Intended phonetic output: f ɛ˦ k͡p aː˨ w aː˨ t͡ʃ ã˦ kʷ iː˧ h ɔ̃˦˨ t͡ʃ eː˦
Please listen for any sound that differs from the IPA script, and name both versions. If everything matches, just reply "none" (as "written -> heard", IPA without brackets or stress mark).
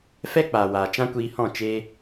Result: eː˦ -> eː˧